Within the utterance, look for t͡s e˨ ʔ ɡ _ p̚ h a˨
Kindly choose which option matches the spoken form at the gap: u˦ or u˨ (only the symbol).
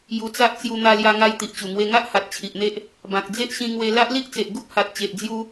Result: u˦